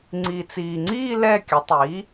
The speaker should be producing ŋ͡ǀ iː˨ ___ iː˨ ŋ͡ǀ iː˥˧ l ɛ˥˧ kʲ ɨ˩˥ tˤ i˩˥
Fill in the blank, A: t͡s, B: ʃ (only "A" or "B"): A